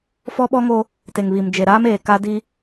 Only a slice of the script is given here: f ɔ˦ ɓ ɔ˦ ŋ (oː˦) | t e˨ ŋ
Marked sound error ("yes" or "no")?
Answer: no